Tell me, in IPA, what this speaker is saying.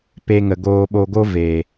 p e˧ ŋ ə˨ ɡ oː˧ ɓ o˧ ɡ o˦ v eː˨

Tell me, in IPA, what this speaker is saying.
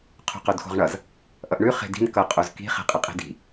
qʰ o̤ q o d x o̤ ʁ ɳ ʌ z | ʔ ʌ ʔ ɳ ʉ χ e̤ d i̤ n k ʌ qʼ o z k i̤ χ e̤ qʼ ʌ qʼ i̤ d i̤

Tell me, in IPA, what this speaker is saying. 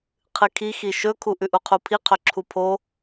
qʰ ɨ kʰ i x i ʃ ɵ kʰ u ʔ ʉ ʔ u qʰ u pʰ i qʰ ɵ ǁʰ u pʰ o

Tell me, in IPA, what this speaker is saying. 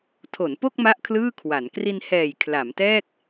tʰ o˩˦ n p o˥˩ k̚ m a˥˩ ʔ kʰ l ɯː˥˩ kʰ w a˩˦ n k r i˧ n h ɛː˨˩ j kʰ l a˩˦ m t ɛː˥˩ k̚

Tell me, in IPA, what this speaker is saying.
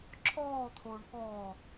ǁʰ ɔː t̪ʰ oː ɳ k ɔː

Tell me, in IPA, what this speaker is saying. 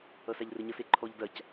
ʌ s a ʎ r ɘ ɲ ʌ s e ǃʰ ɔ ʎ d ɐ c

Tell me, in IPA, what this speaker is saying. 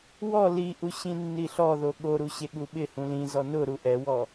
w ɔ l i ʔ u ɕ ĩ nː i ɬ ɔ ð o ɠ o ɾ u ɕ e ɠ u ɓ ɪ h ũ l ĩ z ɔ n ʊ ɾ u ʔ ɛ w ɔ

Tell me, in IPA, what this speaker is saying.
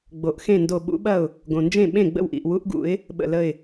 ɡ͡b o˩ ʔ x ẽ˥˩ n d o˧˩ ɓ ṵ˨˥ ɓ ɐ˥˩ ʊ̯ | ɡ õ˩ n d͡ʒ ẽ˥˩ ɓ ẽ˥˩ ɡ͡b ə̰˥˩ w ʔ ḭ˩ ʔ w u˨˥ ʔ ɡ ṵ˨˩˦ ɪ̯ | ɓ ə̰˧˩ l ə˧˩ ɪ̯

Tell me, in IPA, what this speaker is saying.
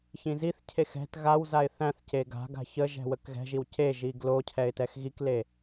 ç ĩ z i θ cʰ e x ɛ̤ t ɣ a w z a ɪ̯ θ æ̃ θ c e ɡ a̤ ɡ a̤ ç ə ʒ ɛ̤ w ə k ɣ ɛ̤ ʒ i w c e ʒ i ɡ l o cʰ ɛ ɪ̯ t ɛ x ɣ i k l e

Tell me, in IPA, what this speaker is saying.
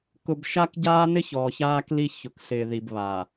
k ʊ˨ b ʃ a˦ k ɟ aː˦ n ɪ˦ ç ɔː˨ ç aː˦ k l i˦ ç ʊ˨ k s ɪː˨ ð i˨ b β a˨

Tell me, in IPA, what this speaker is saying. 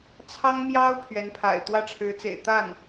t͡sʰ ɑ˥ ŋ m j ɑ˥ ʊ̯ pʰ ɥ ɛ˧˥ n pʰ a̰˨˩ ɪ̯ t̪ w ä˥˩ ʈ͡ʂʰ ɻ̩˧˥ t͡s ḛ˨˩ ɪ̯ t̪ a˥˩ n

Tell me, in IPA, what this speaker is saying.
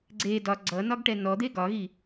ɡ͡ǀ e d ɒ ɡ͡ǀ ʌ n ɒ ɡ ʈ ɛ n ɔ d̪ e ɡ ɒ ɣ i

